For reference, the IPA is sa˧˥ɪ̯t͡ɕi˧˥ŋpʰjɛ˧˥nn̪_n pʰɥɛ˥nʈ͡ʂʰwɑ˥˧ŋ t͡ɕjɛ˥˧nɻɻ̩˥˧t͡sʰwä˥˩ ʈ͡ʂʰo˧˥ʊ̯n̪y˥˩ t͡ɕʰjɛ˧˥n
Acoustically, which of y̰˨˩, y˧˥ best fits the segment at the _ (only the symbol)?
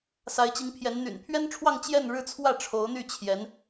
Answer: y̰˨˩